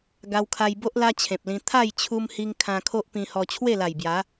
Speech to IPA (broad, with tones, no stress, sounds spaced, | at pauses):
ɡ a˧ w kʰ a˧ j b o˦ ʔ l a˧ t͡ɕʰ ẽ˨ p̚ l ĩ˧ t̪ʰ a˥˧ j t͡ɕʰ u˧ m h i˧ ŋ kʰ ã˧ kʰ o˦ ʔ p ĩ˧ h ɔ˧ t͡ɕʰ w e˥˧ l a˨˩ j b j a˨˦